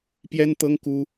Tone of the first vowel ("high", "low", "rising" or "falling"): high